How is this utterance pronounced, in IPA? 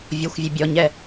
vʲ ɔ xʷ vʲ ə bʲ ɔ ɲ ɛ

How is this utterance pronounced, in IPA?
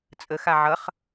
t͡sʼ ə x a ʕ ʌ χ

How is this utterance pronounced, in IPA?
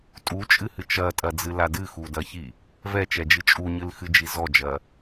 tʼ u t͡ʃʼ ɨ h ɨ t͡ʃ ɐ tʼ ɐ d͡z ɨ l a d ɨ x u d ɐ ç i | v ɛ t͡ʃ ɛ d͡ʒ ɨ t͡ʃʼ u ɲ ɨ l x ɨ d͡ʒ i z ɔ d͡ʒ ɐ

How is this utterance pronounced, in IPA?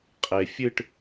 qʼ e fʲ ɨ ʈ

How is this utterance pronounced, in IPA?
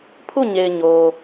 pʰ u˦˨ ɲ e˨ ɪ̯ ɲ o˨

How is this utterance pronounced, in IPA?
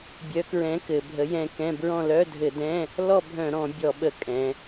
bʲ œ˨˥ k ɹ ɛ̃˨˥ k ɘ˩˧ bʱ ə˨˥ j ɛ̃˦˨ k ɛ̃˧˥˧ b ɹ ɔ̃˦˨ l œ˧˥˧ dʱ ɘ˧˩˧ d ɛ̃˧˥˧ | l ɔ˦˨ bʱ œ̃˧˩˧ ɾ ɔ̃˧˩˧ bʲ ɔ˧˩˧ ɓ ə˧˩˧ kʼ ɛ̃˩˧

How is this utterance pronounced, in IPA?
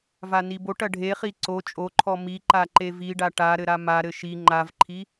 v a n i b o ʈ ɐ ɖʱ e χ i ǀ o t͡ʃʼ o ǃʰ ɔ m i ǃ a ǃ e v i ɖ a ʈ a ɾ ɘ ɾ a m a ɾ ɘ ʃ i ŋ͡ǃ a v ǃʰ i

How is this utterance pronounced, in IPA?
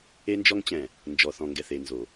e˦ n d͡ʒ ɔ˦ ŋ t͡ɕ ɛ̃˨ | n d͡ʒ ɔ˨ θ ɔ̃˨ ŋ ɡ ɛ˨ θ e˨ n z o˨

